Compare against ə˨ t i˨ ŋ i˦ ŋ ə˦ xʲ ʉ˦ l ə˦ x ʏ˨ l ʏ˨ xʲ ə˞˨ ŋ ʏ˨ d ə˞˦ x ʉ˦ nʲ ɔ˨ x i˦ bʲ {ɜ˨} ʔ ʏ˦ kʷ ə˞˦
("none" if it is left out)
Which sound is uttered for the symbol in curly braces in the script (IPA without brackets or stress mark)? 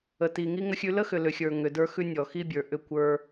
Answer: ə˞˨